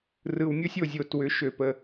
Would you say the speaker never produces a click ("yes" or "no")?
yes